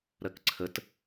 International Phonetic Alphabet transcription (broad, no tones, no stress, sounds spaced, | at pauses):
ɾ ɜ k ǀʰ ə t